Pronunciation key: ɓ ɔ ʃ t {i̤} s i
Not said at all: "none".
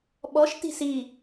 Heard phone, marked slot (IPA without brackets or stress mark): i̤